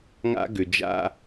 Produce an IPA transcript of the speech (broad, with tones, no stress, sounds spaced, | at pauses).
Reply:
ŋ a̰˦ ɡ ʏ˨ d͡ʒ a̰˦